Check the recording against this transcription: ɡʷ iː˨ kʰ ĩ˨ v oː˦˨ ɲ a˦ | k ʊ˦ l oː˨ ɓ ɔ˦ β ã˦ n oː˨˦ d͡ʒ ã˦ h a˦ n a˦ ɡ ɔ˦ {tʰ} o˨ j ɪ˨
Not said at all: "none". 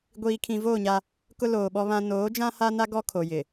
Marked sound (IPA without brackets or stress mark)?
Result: kʰ